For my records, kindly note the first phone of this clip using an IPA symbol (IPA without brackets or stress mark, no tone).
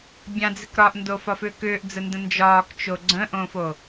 bʲ